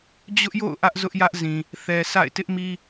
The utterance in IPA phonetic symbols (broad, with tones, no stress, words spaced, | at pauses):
d͡ʑʊ˦ʔjo̰˦˨ʊ̯ ʔä˦ʔ zʊ˦ʔjä˦ʔzĩ˨ | θɛ˨sa̰˦˨ɪ̯ tɪ˦ʔmi˦